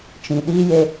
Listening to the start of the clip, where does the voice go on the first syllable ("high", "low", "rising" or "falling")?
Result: low